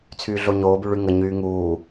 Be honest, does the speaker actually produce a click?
no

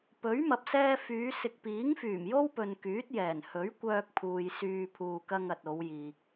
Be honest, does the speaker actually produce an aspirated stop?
yes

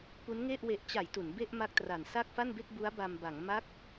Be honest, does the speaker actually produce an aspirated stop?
no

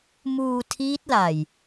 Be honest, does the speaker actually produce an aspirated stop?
yes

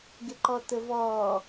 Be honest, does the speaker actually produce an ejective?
no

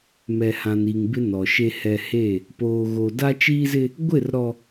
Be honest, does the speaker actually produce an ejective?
no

